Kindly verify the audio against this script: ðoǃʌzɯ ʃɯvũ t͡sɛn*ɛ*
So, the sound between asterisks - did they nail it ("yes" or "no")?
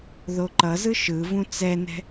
no